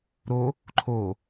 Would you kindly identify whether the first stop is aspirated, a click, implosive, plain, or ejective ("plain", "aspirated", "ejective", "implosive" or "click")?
click